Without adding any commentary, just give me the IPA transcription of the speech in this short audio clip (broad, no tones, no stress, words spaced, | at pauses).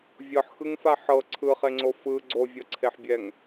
vʲɤħxɯŋfa ħɤ ǀʰɯχeŋ͡ǀo fɯ ɡ͡ǀovʲɤǀʰeħbʲɛŋ